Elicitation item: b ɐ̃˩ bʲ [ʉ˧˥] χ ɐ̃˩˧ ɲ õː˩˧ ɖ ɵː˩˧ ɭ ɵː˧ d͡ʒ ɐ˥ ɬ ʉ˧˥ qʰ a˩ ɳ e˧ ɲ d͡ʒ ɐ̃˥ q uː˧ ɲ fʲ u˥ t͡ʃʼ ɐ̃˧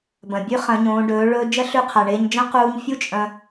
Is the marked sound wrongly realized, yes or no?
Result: no